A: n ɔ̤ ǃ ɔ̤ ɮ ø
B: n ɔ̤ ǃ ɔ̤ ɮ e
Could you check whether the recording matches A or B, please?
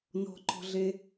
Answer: B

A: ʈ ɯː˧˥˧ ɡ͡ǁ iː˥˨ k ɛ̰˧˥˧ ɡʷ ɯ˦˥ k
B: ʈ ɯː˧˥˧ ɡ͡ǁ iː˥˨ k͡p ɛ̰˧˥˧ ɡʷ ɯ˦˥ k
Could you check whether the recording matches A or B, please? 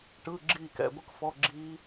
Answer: A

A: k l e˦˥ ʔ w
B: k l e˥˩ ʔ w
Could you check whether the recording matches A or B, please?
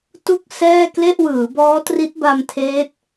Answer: B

